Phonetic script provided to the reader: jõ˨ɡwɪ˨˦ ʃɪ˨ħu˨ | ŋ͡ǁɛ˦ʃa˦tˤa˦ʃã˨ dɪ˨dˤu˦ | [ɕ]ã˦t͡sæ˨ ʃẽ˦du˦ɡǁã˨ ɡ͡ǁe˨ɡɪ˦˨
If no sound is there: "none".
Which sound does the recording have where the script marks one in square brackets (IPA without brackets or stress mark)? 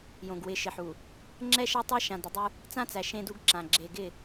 t͡s